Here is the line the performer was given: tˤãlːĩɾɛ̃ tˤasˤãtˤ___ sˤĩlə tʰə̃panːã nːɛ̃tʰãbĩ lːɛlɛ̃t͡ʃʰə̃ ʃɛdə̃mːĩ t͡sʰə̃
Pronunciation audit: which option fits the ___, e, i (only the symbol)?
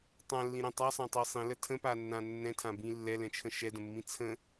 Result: i